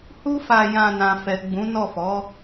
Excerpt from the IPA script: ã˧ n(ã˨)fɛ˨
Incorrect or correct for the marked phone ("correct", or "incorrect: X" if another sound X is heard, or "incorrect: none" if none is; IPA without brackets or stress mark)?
correct